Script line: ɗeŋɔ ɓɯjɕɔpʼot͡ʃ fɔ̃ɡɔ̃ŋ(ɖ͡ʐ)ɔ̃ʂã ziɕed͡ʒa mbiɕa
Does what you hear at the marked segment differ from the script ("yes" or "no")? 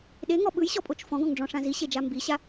no